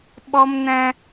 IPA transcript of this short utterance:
ɓɔ˦mnɛ̃˦

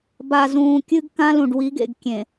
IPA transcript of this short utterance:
ba˨zũː˨kʲɨ˦ɡ kã˦lũ˨ɖwi˨˦ɡḛ˨ɡ kʲẽ˨

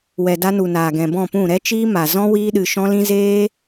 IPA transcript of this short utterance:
wɛ˨da˧nu˨naː˨ ɡɛ̃˨bɔ̃˦˨pũ˦˨ ɾɛ˦t͡ʃiː˦ma˨ zɔ̃˦ wiː˧ɗɨ˨ ʃɔ̃˦lĩ˦ zeː˦

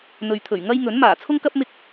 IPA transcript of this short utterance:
n̪ɵ˨ɥt̪ʰɵ˨˩ɥ ŋɐ˥j ŋɵ˨˥n maː˨˩t͡sʰʊ˥ŋkɐ˥p̚ mɪ˧k̚

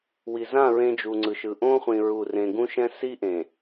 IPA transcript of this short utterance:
wi˨zã˦˨ ɹẽ˦d͡ʒu˨ŋ͡ǀɯ˨ʃɯ˨ ʔõ˦χʷĩ˨ ɹu˦˨rẽ˦ ɡũ˦ʃɛ̃˦ si˦ʔẽ˨

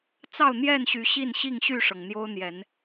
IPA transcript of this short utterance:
t͡sɑ˥˨ʊ̯n̪jɛ˥˨nɕy˨˦ ɕi˥˨nɕi˥˨ŋɕy˥˨ʂɤ˩ŋ n̪jo˦ʊ̯n̪jɛ˨˦n

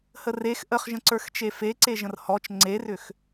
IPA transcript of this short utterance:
hərex ʔəχʒə̃ǀə˞x t͡ʃefeǀe ʒə̃rhɔt͡ʃ ŋ͡ǀerʏx

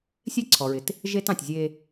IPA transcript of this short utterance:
sʲe˦ ǀʰɔ˨ɹɪ˨t | ʒe˦tɑ̃˨tʲzʲe˦

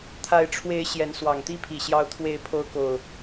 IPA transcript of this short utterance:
t̪ʰa˨˦ɪ̯ʈ͡ʂʰwe˨˦ɪ̯ ɕjɛ˨˦nswɑ˨˩ŋt̪i˥˨pʰi˨˩ ɕjɑ˨˦ʊ̯t̪ʰwe˨˦ɪ̯pʰo˨˦ʊ̯ko˨˩ʊ̯

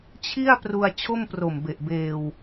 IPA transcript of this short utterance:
t͡ɕʰi˥˩a̯pru˧a̯ t͡ɕʰo˥˩mpro˨˩m be˨˩ʔbeː˧w

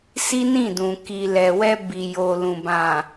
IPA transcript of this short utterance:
si˦nĩ˦˨dũ˨ ki˨ lɛ˨wɛ˧ bi˨jo˨lũ˨ bã˨

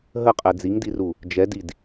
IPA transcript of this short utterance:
ɦəqʼɛ d͡ziŋdiru | d͡ʒɛdid

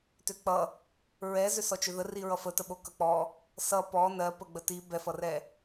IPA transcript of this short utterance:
tʏk͡pʌ | ɹɛ zʏsɔt͡ʃʏðə riɹʌfətə ɓokʌk͡pɔ | sʌ pɔ nɜ pəɡ͡bəti bɛfʌrɛ

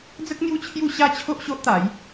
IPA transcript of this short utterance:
d͡zə˦k̚ n̪ju˦t͡ɕʰju˥˧ɕa˦t͡ɕʰo˦ʔ ɕo˦ʔt̪a˨˦j

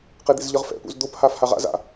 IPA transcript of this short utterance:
qed̪ḛzʎʌʁfɛ̰ pṵzd̪op haːfhaʁa̰z a̰

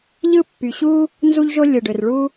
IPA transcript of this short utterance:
ʎɯ˥pːy˩ɕu˥ | nzu˥ʎʒo˥ lʲɯ˩ɖø˩rɭu˥

